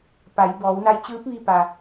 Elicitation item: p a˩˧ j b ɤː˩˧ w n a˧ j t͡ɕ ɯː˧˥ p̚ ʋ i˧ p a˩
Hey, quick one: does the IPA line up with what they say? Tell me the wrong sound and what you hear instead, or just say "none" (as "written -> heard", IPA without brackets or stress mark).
ɤː˩˧ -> ɔː˩˧